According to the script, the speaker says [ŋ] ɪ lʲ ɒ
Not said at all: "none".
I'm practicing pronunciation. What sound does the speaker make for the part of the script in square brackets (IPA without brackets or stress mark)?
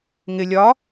ŋ